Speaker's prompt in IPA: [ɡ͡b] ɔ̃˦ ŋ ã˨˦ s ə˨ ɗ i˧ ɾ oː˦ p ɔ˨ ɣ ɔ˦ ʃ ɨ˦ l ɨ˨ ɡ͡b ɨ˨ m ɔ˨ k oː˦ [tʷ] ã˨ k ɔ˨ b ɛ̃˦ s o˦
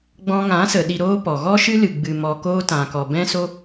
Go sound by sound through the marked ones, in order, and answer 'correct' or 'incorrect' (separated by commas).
correct, incorrect